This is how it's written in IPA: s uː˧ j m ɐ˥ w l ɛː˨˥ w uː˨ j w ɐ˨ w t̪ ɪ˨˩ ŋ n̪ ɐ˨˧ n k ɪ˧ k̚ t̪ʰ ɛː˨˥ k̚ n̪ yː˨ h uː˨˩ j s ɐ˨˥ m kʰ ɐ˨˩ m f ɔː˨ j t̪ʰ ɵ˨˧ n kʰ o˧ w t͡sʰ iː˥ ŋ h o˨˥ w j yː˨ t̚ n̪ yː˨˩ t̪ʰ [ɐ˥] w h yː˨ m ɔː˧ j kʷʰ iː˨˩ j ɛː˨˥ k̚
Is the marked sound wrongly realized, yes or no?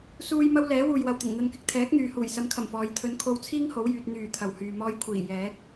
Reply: yes